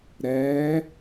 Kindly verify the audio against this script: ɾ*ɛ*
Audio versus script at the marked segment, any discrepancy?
no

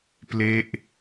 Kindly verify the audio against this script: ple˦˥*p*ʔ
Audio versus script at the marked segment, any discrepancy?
yes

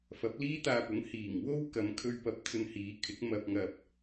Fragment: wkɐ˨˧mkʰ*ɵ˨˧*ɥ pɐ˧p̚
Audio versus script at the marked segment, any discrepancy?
yes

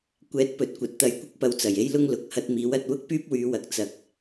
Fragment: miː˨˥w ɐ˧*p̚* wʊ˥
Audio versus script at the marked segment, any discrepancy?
yes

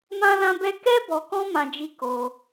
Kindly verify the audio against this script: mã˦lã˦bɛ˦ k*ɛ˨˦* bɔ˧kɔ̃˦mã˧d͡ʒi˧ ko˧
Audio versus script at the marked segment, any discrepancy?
yes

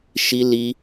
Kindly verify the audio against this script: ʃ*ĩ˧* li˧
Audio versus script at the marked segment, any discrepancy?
yes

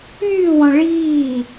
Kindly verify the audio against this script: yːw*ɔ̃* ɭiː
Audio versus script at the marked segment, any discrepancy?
no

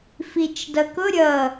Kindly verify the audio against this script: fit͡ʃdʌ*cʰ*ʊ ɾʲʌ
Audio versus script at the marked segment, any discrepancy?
yes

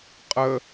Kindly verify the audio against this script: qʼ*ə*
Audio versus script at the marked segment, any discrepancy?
no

